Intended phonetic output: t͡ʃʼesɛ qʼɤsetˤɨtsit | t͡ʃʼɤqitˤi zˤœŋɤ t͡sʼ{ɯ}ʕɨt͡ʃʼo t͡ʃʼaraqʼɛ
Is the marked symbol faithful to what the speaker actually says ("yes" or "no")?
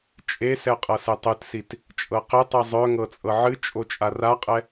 no